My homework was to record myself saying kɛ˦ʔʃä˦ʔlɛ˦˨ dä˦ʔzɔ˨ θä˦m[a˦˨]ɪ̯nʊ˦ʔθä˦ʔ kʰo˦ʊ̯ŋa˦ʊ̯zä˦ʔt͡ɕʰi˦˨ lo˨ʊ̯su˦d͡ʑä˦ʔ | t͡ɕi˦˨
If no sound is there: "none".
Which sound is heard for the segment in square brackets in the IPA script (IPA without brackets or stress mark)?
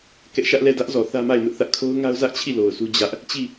a˦˨